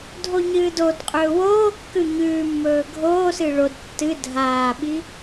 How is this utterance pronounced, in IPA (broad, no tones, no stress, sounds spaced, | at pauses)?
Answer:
dʱ o ɲ ɨː d o d qʼ ɵː w oː kː ʉ ɲ ʉː mː ɵː ɡʱ oː s ɨ ɭ o d tː ɨ dʱ aː ɓ i